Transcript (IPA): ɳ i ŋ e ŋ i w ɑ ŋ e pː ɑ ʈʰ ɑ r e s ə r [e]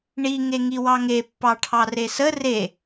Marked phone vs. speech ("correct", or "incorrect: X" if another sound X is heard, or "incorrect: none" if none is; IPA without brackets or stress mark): correct